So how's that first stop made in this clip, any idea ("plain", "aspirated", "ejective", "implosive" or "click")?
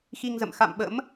implosive